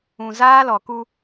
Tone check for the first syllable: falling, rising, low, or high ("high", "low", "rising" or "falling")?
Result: low